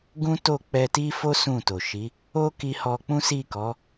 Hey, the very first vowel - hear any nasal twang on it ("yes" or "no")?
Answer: yes